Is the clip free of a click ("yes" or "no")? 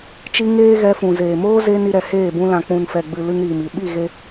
yes